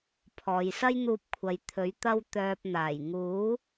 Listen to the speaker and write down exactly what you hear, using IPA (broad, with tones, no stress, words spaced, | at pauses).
pʰɔː˨jsɐ˥jn̪uː˧p̚ kʷʰɐ˨˧jt̪ʰɵ˨˥ɥ t̪ɐ˥wt̪œː˧p̚n̪aː˨˩j ŋuː˨˥